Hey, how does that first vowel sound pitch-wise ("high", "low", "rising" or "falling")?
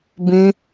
high